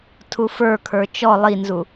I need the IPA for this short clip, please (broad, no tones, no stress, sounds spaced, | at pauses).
tʰ u f ə˞ kʰ ə˞ t͡ʃ ɔ lˠ i n z u